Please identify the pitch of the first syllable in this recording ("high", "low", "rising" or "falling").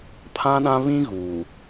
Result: high